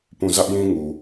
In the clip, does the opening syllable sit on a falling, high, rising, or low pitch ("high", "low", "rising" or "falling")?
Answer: falling